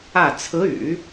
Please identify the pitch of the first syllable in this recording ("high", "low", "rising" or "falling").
falling